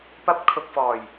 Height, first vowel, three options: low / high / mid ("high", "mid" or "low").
low